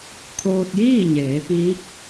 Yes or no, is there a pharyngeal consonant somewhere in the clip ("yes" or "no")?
no